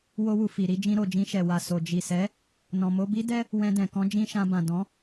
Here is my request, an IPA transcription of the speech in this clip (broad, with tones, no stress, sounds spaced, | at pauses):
w o˧ w u˨ f i˨ ɾ i˨˦ d͡ʒ ĩ˧ ɾ o˨ d͡ʒ ĩ˧ ʃ ɛ˨ w a˨ s o˨ d͡ʒ i˨ s ɛ˨˦ | n ɔ̃˨ m o˧ b i˦ d ɛ˦ | w ɛ̃˧ d ɛ̃˨ k ɔ̃˧ d͡ʒ ĩ˦ ʃ ã˧ b ã˨ d ɔ̃˨˦